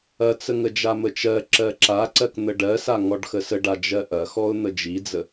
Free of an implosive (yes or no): yes